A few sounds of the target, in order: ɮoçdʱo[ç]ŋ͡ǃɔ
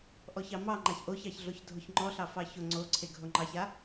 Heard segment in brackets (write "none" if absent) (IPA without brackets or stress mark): ç